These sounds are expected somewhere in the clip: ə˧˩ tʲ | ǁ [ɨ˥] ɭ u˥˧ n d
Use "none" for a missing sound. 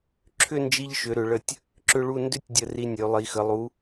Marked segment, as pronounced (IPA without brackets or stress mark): ʏ˥